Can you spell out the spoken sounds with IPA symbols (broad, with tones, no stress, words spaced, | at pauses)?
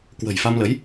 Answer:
kwə̤˨˩jfa˧mlə˨˦j